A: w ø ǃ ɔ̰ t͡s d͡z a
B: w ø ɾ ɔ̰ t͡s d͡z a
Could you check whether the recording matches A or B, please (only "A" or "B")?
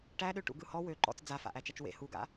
A